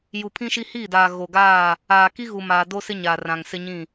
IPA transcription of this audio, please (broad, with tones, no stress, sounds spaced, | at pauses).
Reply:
j u˨ pʰ ĩ˦ ʃ i˦ h iː˦˨ d aː˨ ɣ o˨ ɡ aː˦˨ | aː˨ k i˦ ɣ u˨ m aː˨ d o˦ s ɪ˦ ɲ aː˨ r ã˨ ŋ s ɪ˦ ɲ ĩ˦˨